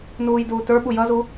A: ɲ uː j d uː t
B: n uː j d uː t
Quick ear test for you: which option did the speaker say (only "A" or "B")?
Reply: B